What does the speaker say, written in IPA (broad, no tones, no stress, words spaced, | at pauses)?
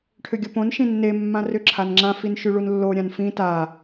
ʈʰʏɡʲopõn ʃĩnːe mːãrʏ ǁʰanŋ͡ǁã finʃyɭunlːo ɾʲãnfĩ ta